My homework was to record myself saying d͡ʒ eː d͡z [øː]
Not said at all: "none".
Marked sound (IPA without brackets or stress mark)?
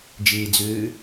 øː